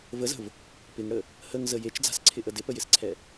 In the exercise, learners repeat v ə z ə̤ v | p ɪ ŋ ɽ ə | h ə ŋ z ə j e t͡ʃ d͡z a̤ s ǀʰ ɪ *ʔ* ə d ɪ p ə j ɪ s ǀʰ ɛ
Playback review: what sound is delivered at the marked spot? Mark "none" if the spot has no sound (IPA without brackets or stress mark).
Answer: ʔ